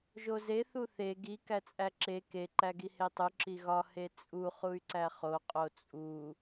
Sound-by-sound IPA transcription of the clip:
ʒ o z e θ u θ e ɡ i k æ t͡sʼ æ ǁ e k e ǃ æ ɡ i h e tˤ u ǁ i ɣ ɒ h e t͡sʼ u χ u y̯ ǀ æ χ o qʼ o t͡sʼ u

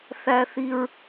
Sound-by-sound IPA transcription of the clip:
θ æ˩ θ i˩ ɹ

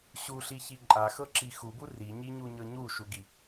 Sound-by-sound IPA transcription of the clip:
ɕ u ɬ i ç i ǃʼ a x ɤ ǁ i x u b u r i ɲ i ɲ u ɲ ɤ ɲ u ʃ u ɡ i

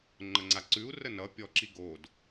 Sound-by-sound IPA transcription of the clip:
ŋ͡ǃ ə ŋ͡ǀ a ǀ ʉ u̯ r ə n ʌ pʲ ɔ ǁ i ɡ o d

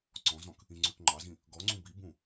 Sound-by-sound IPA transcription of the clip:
ǀ ɔ̃ z ɔ̃ k | ĩ ŋ͡ǀ ʉ k ŋ͡ǃ ɑ z ĩ | ɡ ɔ ŋ͡ǀ ũ b i b ũ

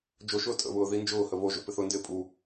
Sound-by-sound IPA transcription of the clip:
d͡ʒ o ʃ ʊː tʼ ə̰ β ʊː ð i n d͡ʒ ʊː h ə β o ʒ o̰ p ɪ θ ʊ n d ɪː pʼ u

